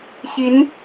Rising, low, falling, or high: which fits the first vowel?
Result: rising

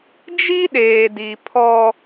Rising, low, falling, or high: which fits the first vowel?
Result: high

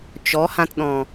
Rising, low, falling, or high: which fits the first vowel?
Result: rising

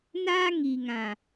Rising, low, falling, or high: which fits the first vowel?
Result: high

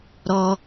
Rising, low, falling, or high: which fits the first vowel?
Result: high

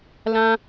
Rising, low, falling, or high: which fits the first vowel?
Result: high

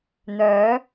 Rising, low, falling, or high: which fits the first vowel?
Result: rising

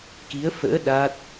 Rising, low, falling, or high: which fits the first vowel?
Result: rising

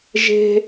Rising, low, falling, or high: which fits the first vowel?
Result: high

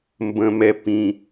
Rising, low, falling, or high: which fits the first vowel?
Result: low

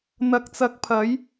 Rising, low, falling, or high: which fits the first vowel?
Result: rising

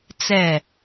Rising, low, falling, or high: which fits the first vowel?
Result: falling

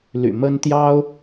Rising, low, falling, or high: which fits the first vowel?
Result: low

